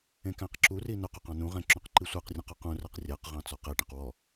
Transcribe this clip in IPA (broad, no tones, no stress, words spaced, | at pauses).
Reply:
ẽkæ̃qǁuri nœqɵq ɑ̃nũʁɛ̃ ǁũqǃisʷæqrʲœ̃q ɔqũræq rʲæqʁɑ̃ t͡sɔqɛʈɛ̃q wɔ